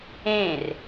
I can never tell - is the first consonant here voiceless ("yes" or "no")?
no